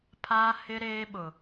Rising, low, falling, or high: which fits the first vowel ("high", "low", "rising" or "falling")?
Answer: high